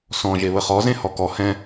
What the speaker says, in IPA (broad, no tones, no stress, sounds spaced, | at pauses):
s ɔ̃ ʒ e β ə χ ɔ z ẽ h ɔ k ɔ h ɛ̃